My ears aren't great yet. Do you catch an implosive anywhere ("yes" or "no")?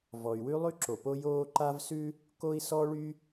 no